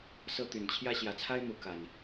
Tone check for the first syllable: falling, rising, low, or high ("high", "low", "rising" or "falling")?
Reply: high